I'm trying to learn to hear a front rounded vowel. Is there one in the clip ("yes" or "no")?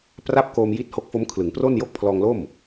no